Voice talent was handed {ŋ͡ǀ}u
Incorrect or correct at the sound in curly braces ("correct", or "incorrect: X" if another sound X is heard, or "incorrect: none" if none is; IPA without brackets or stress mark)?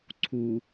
incorrect: ǀʰ